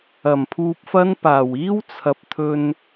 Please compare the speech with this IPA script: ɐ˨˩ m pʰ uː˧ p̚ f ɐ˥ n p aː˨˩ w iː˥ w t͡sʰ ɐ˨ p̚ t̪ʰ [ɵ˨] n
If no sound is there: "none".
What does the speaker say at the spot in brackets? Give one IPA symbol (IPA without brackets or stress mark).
ɵ˧